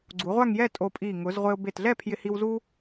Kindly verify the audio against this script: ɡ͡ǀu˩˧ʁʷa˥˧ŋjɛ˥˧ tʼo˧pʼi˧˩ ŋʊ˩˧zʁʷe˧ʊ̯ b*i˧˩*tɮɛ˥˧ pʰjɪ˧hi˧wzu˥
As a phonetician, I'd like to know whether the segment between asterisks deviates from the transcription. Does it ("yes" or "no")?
yes